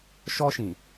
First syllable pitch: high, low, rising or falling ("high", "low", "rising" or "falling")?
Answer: high